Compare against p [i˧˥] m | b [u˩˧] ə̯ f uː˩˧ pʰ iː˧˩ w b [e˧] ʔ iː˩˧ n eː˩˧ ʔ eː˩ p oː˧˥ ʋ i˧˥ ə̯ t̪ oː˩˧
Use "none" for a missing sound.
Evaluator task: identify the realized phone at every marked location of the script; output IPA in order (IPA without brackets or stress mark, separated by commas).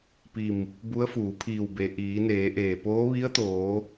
i˧˩, u˧˥, e˩